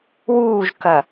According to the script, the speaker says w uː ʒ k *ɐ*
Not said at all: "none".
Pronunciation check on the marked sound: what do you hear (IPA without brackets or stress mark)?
ɐ